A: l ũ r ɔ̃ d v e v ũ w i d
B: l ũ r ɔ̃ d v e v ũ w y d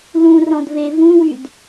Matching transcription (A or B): B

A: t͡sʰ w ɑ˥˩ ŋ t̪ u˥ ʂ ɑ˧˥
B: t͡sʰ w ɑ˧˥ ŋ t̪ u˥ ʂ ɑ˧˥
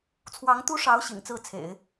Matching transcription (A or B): B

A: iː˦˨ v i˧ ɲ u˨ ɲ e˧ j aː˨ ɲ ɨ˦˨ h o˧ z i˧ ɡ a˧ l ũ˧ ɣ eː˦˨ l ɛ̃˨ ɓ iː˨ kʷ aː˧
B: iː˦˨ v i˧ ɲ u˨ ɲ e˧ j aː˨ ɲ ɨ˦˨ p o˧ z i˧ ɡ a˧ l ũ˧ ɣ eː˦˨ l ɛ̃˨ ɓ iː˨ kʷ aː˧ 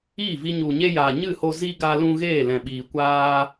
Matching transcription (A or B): A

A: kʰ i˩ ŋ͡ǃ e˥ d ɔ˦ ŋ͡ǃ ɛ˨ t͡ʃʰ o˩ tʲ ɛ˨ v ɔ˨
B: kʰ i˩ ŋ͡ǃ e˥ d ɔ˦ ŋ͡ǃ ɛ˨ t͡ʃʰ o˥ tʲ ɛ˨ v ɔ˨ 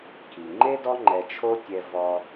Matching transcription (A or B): B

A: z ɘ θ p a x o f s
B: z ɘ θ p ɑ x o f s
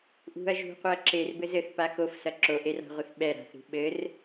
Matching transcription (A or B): A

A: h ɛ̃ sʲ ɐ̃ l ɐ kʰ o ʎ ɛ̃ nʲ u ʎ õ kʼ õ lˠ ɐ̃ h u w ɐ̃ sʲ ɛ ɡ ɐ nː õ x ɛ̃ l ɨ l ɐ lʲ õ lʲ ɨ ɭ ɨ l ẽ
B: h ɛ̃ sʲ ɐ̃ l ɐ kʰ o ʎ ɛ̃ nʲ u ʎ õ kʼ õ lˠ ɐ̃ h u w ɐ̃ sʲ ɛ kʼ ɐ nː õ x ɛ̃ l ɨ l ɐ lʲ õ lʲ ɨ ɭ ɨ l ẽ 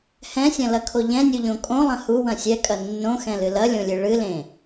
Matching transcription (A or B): B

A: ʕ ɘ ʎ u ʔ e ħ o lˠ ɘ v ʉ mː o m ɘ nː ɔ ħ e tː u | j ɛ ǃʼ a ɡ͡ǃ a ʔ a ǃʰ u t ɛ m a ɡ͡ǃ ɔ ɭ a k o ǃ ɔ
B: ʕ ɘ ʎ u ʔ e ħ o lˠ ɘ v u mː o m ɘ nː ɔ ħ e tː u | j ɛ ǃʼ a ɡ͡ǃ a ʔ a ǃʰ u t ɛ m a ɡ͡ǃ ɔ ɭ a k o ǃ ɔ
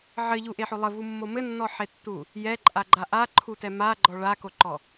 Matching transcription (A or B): B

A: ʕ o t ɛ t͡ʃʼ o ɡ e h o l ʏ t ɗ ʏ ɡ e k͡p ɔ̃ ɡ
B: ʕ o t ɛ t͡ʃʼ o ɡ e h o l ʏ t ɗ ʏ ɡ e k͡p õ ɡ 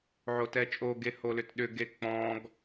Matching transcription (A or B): A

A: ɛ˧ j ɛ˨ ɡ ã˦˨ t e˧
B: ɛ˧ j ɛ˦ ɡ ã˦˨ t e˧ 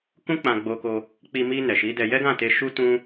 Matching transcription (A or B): B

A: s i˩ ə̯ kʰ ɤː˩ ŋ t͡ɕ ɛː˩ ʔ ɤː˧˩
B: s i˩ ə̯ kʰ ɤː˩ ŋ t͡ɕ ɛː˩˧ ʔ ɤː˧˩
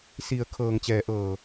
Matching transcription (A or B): A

